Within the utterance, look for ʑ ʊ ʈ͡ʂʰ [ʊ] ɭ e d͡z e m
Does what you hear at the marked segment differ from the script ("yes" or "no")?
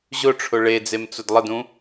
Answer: no